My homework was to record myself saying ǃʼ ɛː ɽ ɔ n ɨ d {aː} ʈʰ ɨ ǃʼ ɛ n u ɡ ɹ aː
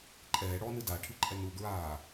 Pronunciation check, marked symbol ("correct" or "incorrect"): incorrect